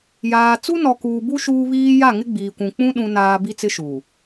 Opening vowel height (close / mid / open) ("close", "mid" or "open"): open